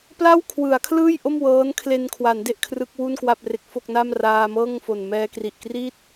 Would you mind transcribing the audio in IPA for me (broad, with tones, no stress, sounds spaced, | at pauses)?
p l a˥˩ w kʰ w ɯ˩˦ a̯ kʰ l ɯː˥˩ j ʔ o˥˩ m w ɤː˦˥ n kʰ l e˧ n kʰ w a˩˦ n d e˦˥ ʔ kʰ r ɯ˦˥ k̚ w u˥˩ n k w a˥˩ p̚ r e˦˥ k̚ f o˥˩ k̚ n a˥˩ m r aː˧ m ɤː˥˩ ŋ f o˨˩ n m ɛː˧ k r i˨˩ ʔ k r i˥˩ t̚